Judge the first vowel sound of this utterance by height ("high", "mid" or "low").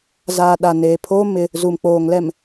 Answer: low